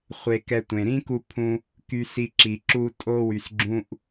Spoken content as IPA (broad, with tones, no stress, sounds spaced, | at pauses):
χʷ e˧ k ɛ˧ tʷ ẽ˨ ɾ ĩ˦ k u˧ pʰ ũ˧ | k y˧ s i˧ ǁ i˨ ǁ u˧ tʼ o˧ w y˨ s ɡ͡ǁ ũ˦ ʔ